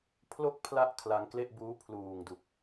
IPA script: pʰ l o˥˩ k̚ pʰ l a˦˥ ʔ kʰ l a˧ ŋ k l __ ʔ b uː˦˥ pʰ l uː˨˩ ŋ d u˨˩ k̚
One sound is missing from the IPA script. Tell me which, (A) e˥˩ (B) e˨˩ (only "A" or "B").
A